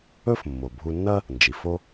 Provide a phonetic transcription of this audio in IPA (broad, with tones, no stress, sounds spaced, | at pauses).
ɵ˥ f mː o˩ bʱ u˧ nː ɐ˥ | n d͡ʒ i˩ f o˥